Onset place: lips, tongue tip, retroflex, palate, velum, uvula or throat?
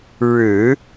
retroflex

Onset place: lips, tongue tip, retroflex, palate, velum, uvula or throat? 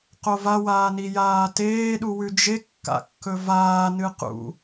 uvula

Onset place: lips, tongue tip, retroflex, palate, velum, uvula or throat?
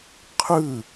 uvula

